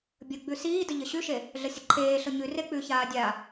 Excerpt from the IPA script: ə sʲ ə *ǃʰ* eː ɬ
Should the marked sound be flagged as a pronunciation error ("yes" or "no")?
no